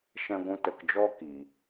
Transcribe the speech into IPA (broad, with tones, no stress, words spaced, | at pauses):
ʃɛ̃˧ɡʷũ˧ tə˨kd͡ʒɔ˧ ki˨